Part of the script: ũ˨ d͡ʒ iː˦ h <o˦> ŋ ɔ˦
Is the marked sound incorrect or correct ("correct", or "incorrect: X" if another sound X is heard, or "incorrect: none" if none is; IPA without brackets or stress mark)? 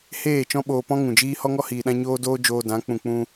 incorrect: ɔ˦